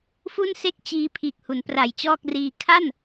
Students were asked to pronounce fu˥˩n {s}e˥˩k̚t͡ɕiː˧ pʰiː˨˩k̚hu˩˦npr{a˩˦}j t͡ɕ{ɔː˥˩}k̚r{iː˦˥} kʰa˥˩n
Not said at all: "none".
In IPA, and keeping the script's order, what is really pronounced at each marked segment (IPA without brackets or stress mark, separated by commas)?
s, a˨˩, ɔː˥˩, iː˧